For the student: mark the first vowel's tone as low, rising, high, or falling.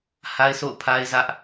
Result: high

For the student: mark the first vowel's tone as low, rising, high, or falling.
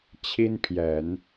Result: high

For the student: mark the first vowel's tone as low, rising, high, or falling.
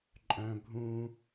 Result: low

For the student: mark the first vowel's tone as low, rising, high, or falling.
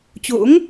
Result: rising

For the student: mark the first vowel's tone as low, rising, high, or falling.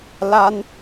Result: high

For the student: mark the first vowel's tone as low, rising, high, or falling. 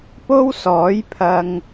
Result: high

